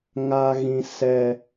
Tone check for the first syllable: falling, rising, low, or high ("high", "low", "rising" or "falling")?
high